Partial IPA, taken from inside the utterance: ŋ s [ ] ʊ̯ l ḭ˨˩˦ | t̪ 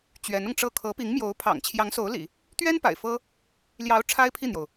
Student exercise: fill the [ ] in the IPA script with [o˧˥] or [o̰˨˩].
o˧˥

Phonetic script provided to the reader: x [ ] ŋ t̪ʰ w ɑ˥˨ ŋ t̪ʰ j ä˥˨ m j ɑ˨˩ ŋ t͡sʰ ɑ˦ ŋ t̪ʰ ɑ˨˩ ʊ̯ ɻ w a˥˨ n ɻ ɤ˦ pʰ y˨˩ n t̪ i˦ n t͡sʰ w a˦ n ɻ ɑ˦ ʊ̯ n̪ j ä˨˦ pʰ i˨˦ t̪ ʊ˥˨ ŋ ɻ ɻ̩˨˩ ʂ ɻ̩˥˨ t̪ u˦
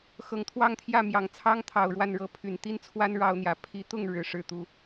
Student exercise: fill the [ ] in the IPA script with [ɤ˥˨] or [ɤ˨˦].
ɤ˨˦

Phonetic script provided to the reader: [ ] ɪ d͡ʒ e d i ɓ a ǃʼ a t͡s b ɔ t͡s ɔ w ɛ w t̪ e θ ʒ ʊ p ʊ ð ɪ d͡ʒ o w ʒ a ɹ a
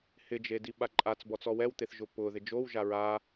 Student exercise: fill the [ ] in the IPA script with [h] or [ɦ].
h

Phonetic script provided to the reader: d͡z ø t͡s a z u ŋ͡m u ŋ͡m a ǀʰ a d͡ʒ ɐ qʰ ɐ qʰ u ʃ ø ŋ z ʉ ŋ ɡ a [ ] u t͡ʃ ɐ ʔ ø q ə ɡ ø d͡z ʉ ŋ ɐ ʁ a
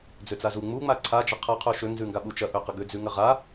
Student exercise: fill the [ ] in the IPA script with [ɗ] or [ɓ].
ɓ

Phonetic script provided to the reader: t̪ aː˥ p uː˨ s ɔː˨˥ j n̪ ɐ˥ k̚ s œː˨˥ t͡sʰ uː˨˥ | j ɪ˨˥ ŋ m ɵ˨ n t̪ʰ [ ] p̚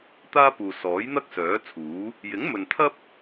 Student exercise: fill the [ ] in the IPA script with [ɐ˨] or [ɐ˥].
ɐ˥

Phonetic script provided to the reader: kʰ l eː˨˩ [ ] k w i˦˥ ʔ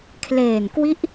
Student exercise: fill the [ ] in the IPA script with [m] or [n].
n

